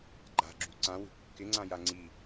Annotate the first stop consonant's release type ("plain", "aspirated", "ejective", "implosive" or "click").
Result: click